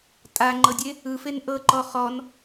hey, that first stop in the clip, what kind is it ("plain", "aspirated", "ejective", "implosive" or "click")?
ejective